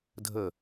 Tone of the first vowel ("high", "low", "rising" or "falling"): falling